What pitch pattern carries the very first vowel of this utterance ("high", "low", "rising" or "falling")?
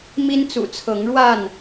high